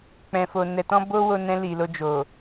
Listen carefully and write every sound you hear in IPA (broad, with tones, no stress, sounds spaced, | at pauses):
k͡p ɛ̃˨ f o˨ n ɛ˨ t ɔ̃˧ b o˧ w o˧ n ɛ̃˧ l i˨ l o˧ d͡ʒ o˨